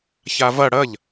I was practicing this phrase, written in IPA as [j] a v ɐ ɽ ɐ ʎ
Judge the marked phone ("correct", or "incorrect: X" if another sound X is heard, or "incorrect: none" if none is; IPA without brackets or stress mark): incorrect: ç